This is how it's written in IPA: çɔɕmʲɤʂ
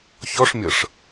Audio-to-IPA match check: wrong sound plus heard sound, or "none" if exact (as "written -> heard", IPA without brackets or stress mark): ɕ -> ʂ